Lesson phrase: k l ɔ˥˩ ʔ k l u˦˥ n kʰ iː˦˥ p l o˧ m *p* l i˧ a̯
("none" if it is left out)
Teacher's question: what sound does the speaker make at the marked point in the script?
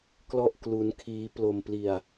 p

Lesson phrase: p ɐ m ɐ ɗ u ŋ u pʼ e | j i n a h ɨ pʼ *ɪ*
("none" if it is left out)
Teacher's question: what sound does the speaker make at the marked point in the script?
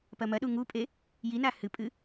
ɨ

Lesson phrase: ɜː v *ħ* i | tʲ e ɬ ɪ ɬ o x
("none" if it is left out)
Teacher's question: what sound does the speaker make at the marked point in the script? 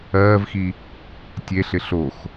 x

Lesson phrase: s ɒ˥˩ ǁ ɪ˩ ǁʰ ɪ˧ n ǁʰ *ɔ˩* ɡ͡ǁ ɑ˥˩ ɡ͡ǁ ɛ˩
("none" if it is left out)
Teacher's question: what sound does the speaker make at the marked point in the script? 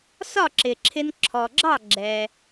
ɔ˩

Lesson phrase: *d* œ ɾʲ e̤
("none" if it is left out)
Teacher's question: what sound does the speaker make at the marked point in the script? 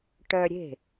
ʈ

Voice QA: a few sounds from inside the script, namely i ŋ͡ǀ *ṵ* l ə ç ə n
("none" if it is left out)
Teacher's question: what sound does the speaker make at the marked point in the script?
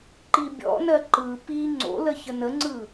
o̰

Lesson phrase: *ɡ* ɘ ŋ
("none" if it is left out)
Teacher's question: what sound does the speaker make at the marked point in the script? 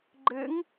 ɡ͡ǃ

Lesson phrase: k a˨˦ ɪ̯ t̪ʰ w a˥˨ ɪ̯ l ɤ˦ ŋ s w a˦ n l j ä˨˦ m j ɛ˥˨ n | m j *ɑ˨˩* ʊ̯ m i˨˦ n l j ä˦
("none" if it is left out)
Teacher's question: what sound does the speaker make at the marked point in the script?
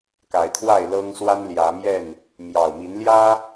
ɑ˨˩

